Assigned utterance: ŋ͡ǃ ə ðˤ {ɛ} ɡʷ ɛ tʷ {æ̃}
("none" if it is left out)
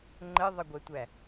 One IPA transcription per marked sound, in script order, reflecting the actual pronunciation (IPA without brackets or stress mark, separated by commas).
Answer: ə, æ